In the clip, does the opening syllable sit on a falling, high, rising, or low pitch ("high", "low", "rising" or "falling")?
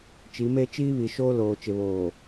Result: rising